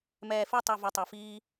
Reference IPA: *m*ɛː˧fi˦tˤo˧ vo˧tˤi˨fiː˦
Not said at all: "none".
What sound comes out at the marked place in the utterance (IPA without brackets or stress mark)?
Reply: m